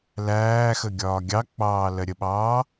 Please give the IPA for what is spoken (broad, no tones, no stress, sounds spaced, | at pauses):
l æː x ə ɡʲ ɒː ɡʲ ɑ k͡p ɑː l ɜ ɾʲ ə ɓ ɑː